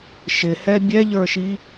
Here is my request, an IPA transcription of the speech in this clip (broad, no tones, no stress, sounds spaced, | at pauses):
ʃ ɪ h ɛ bʲ ɛ ʎ ə˞ ʃ i